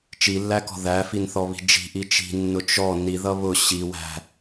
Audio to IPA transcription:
t͡ʃ i lː æ k ɔ̤ ð æ f i n θ ɔ β i̤ d͡ʒ i̤ ʔ i t͡ʃ i̤ nː ʊ t͡ʃ ɔ n i ð ʌ β ʊ ɕ i w æ̤

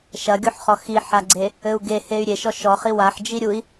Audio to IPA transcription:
ʃ ɐ ɡʲ o ħ χ ɔ x i ħ a ɡ͡ǀ e | ɘ u̯ ɡ e h e y̯ ɾʲ e ʃ ɔ ʃ ɔ χ i w a ħ d͡ʒ i ɾʲ u i̯

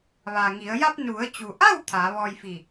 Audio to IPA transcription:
ʋ a˩ ŋ i˩˧ ə̯ j a˧ p̚ n u˩˧ ə̯ t͡ɕ u˩ ʔ a˥˨ w t̪ʰ aː˩˧ ʋ ɔː˧ j f i˧˩

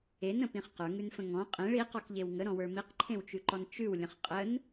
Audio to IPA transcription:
e n ə̃ p ĩ χ q ə˞ ŋ ʉ n f ə̃ ŋ ɔ̃ qʼ ẽ ɭ i q ɔ k ʎ e w ŋ ə ɾ ɔ̃ w ə˞ m i q ǃʰ ẽ w t͡ʃ ʉ ǃ ɔ n t͡ʃ ʉ w lʲ ə̃ χ qʼ ə n

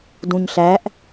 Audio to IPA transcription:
d ũ ɲ ɬ æ ʔ

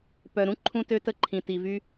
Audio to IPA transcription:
p œ˨ ɾ ũ˦ ǃʰ ũ˦ t ø˦ t ə˦˨ ǃʰ ĩ˨ t i˨ v y˦

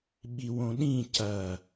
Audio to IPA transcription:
ɓ i w õ ɗ ĩ c ɐ

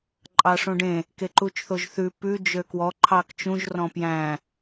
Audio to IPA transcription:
ǃʼ ɑ ʂ õ ɖ ẽ | k e ǃ u t͡ʃ θ o ʒ θ ʉ p ʉ d͡ʒ ø k w ɔ ǃʰ ɑ k t͡ʃ ũ ʒ r ɔ̃ p j æ̃

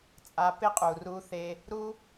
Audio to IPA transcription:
t͡sʼ a˧ p ɪ˦ qʼ u˨ r u˦ θ e˦ | ɾ u˦

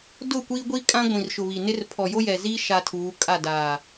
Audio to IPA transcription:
d ʊ˦˨ kʷ iː˦ ɡʷ i˦ kʼ ã˦ ɡʷ ĩ˨ r ʃ ʊ˨ β i˨ n ɪ˦ r pʰ ɔ˨ j o˦ j ɛ˨ z iː˦ ʃ a˦ tʰ uː˨˦ kʼ a˦˨ d aː˨

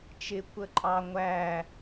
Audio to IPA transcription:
t͡ʃ ɪ kʷ ə ǃʼ ɑ ŋʷ æ

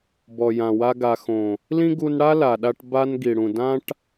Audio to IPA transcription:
b ɔ˨ j ã˨ w a˧ ɡ a˨ x õ˨ | l ĩ˦ ɡ u˧ n ɽ a˦ l a˨ ɗ a˧ ʈ b a˧ n ɡ i˨ ɽ ũ˨ d ã˧ ʈ

